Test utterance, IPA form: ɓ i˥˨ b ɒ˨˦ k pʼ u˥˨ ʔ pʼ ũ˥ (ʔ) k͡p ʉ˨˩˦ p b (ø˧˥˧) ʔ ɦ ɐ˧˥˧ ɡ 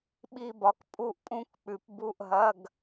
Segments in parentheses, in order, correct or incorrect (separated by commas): incorrect, incorrect